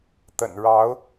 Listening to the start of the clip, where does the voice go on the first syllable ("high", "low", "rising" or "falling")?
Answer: low